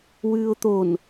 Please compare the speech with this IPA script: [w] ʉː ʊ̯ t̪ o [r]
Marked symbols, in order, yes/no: yes, no

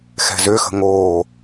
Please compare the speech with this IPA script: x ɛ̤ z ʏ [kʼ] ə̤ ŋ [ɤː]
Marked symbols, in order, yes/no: no, no

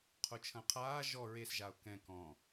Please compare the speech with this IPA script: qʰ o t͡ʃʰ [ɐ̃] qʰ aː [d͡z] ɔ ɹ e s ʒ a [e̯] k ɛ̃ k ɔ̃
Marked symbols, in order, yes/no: yes, no, no

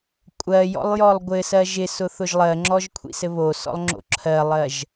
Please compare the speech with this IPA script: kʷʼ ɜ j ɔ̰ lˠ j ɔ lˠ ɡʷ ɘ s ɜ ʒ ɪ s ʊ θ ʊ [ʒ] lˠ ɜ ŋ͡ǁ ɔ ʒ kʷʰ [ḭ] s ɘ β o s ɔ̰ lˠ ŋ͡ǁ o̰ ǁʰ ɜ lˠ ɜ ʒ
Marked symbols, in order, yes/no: yes, yes

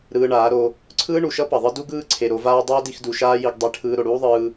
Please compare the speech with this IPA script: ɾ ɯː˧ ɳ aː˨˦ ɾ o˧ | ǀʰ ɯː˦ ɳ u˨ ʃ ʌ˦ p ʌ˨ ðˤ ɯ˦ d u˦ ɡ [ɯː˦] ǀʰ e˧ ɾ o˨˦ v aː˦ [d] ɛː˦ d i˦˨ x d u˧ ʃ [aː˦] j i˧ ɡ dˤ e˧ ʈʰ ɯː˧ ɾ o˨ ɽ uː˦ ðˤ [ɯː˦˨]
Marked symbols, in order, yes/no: yes, no, yes, no

